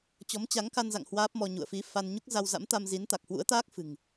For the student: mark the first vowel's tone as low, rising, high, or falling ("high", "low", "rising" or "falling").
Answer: rising